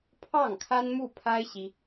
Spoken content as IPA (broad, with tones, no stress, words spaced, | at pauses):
pʰɑ˥˩ŋkʰa˥nmu˥˩pʰa˥ɪ̯ ɕi˥